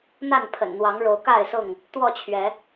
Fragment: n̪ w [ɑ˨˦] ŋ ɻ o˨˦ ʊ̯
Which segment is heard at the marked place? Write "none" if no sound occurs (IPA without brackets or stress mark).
ɑ˨˦